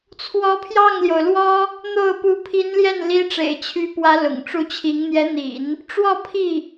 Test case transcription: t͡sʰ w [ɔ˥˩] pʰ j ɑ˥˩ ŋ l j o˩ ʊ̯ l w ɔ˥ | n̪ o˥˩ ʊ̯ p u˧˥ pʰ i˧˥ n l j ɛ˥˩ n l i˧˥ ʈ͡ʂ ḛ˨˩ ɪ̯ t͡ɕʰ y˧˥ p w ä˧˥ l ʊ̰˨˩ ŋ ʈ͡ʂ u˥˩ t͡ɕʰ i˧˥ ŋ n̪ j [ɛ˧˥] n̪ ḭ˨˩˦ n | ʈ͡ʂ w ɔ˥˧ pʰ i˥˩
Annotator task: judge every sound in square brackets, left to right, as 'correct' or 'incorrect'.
incorrect: ɔ˧˥, correct

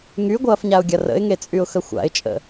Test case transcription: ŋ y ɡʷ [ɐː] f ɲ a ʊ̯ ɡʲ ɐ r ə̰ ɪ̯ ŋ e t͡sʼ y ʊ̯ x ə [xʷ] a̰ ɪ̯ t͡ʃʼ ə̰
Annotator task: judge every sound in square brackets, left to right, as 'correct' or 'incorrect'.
correct, correct

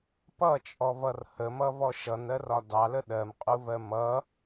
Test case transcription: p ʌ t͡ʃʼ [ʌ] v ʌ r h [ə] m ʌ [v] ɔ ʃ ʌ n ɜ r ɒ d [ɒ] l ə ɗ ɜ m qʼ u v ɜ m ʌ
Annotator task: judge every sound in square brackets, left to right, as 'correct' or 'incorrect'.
incorrect: ɔ, correct, correct, incorrect: ɑ

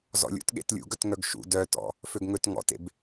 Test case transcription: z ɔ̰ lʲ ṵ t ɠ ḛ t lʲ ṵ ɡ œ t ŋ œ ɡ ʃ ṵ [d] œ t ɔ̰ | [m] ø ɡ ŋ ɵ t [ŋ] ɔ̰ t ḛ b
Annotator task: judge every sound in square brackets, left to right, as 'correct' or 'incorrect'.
correct, incorrect: f, correct

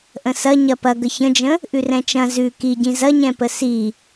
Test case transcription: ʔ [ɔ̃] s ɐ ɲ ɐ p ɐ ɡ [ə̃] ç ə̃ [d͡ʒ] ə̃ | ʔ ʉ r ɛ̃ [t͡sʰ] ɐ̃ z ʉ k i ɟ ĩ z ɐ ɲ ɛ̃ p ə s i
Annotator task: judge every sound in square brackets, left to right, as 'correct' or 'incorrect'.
incorrect: ə̃, incorrect: ə, correct, incorrect: t͡ʃ

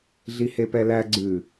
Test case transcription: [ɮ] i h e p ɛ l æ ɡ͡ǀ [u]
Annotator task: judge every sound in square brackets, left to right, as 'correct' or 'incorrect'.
correct, incorrect: ʉ

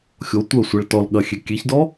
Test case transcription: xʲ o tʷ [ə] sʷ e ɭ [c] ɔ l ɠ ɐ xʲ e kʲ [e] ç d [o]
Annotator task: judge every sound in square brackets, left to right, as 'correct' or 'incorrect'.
correct, incorrect: t, correct, incorrect: ɔ

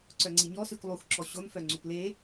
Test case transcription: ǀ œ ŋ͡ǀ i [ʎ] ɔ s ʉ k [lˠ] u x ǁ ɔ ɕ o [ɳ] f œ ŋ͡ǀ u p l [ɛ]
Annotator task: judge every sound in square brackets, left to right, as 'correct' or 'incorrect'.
incorrect: ɲ, correct, incorrect: n, incorrect: e

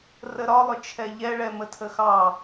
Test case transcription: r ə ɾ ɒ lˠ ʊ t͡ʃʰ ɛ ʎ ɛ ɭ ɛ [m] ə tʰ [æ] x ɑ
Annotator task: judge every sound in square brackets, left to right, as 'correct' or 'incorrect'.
correct, incorrect: ə

